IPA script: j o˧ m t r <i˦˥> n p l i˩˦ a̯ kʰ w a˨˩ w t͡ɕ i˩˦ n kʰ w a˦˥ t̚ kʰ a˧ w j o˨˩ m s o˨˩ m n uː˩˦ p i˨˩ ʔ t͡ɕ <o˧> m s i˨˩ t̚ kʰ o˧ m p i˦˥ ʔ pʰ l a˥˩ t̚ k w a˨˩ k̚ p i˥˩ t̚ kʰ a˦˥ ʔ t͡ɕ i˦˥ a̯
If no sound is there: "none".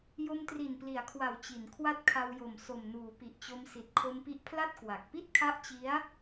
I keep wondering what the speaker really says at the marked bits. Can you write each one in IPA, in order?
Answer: i˨˩, o˧

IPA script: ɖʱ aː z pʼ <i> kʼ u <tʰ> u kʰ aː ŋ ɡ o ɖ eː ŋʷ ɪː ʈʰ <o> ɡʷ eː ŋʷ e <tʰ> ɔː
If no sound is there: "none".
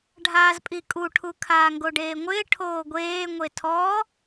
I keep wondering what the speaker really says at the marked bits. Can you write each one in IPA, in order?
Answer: i, ʈʰ, oː, tʰ

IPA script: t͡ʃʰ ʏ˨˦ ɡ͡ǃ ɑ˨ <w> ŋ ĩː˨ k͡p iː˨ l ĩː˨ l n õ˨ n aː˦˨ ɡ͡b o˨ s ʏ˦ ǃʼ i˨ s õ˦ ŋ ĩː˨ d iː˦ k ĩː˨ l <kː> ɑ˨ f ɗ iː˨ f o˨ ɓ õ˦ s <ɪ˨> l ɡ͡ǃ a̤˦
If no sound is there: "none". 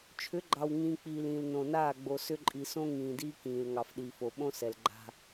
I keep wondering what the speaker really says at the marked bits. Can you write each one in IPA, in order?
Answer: w, ŋ, ɛ˨

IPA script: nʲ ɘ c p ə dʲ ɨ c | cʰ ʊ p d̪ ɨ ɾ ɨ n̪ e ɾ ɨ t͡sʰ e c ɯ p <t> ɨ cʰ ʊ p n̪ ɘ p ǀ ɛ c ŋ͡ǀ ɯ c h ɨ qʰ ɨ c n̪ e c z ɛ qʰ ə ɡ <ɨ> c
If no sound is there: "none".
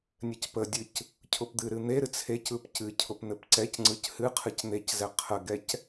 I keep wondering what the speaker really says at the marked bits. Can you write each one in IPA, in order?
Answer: c, ɛ

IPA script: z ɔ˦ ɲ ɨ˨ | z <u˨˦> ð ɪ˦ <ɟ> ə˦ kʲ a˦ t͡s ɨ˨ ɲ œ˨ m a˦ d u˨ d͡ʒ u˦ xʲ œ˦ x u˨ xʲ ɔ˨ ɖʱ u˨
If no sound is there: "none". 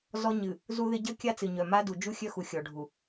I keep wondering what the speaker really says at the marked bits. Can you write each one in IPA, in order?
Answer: u˦, ɟ

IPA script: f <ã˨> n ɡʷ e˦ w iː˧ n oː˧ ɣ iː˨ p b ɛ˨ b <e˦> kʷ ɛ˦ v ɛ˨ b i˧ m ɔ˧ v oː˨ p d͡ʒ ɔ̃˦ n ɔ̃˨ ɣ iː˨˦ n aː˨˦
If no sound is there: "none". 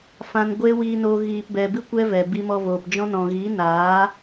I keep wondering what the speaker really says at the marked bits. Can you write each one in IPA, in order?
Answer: ã˧, ɨ˦

